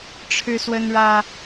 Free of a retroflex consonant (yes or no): no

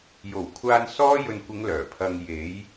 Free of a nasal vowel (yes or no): yes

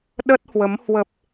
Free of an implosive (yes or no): no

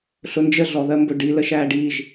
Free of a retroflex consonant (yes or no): no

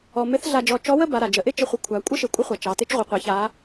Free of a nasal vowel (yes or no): yes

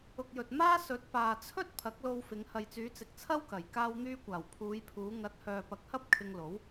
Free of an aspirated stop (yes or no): no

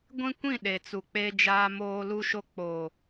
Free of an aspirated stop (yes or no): yes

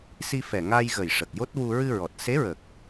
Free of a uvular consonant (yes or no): yes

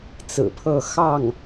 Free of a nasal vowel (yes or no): yes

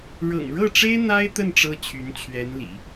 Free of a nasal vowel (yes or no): yes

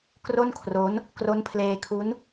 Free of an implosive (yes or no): yes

